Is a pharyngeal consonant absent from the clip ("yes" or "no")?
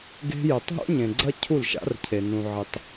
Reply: no